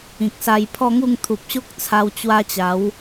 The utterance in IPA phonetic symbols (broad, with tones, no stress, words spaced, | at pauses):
ĩ˨k̚sa˧jpʰɔ˥˧ŋu˥˧ŋ t̪ʰu˨p̚ɕo˦k̚t͡sʰa˧w t͡ɕwa˧t͡ɕa˨˦w